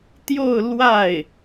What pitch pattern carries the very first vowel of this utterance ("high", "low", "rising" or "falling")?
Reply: falling